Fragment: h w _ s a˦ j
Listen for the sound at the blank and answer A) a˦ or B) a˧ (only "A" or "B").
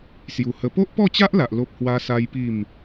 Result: A